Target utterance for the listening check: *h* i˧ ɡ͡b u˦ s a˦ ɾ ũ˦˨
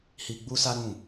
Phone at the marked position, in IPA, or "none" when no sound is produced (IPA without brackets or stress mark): h